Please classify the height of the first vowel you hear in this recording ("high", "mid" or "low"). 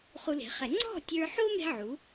high